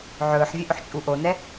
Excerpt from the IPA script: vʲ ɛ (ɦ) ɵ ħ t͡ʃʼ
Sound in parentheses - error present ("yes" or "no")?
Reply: yes